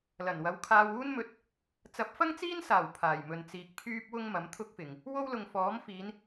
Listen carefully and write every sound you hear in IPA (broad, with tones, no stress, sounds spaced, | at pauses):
l ɐ˨˩ n w ɐ˨˧ w kʰ aː˧ w uː˥ n m ɵ˧ t̚ | t͡s ɐ˨˥ p̚ f ɐ˥ ŋ t͡s iː˥ n s aː˨˩ w pʰ aː˨˩ j m ɵ˨ n t͡s iː˨ k̚ pʰ yː˥ p̚ w ʊ˥ ŋ m ɐ˨˥ m t̪ʰ ʊ˥ k̚ f ɪ˨ ŋ | w o˥ w l ʊ˨ ŋ f ɔː˨˥ m f iː˨˧ n